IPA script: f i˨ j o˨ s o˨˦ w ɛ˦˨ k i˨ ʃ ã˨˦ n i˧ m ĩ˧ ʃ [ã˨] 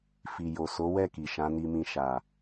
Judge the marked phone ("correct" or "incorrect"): incorrect